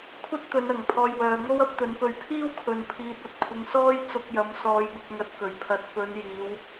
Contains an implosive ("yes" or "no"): no